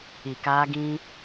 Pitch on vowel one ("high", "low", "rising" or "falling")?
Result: low